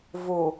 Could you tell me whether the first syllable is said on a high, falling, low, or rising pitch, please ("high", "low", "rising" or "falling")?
low